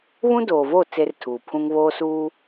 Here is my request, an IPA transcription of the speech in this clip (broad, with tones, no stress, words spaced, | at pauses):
βũ˦doː˨voː˦˨ t͡se˦rtʰuː˨pʰũ˦ŋ βoː˦suː˦